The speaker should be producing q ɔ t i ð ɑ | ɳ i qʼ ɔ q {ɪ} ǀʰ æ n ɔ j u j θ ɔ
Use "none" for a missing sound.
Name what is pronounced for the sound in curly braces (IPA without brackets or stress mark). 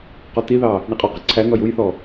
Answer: ɪ